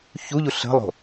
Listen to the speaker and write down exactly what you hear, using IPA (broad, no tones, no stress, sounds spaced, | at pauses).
ç u ʎ u ɬ ə̤ lˠ o̤